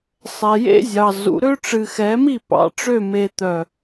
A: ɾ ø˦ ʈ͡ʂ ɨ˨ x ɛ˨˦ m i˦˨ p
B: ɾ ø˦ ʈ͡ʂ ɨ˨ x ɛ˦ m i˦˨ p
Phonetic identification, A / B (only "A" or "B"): A